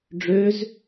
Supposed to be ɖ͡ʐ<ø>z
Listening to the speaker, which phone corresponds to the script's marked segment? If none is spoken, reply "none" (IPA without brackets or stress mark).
ø